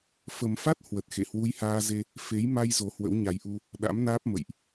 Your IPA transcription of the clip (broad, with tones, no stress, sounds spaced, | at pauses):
f ə˨˩ m f a˦˥ t̚ h w ə˨˩ t̚ x ḛ˧˨ h w u˧ j h aː˧ z e˧ | f e˨˦ j m a˧ j z o˨˦ h w ə̰˧˥ w ɲ a˨˦ j ʔ u˧ | ɗ a̰˧˥ m n aː˦˥ p̚ m ə̰˧˨ j ʔ